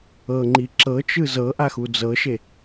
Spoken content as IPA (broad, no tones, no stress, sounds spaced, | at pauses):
ɤ ŋ͡ǃ i ǁ ɤ t͡ʃ ɯ z ɤ ʔ a x u d͡z ɤ ʃ e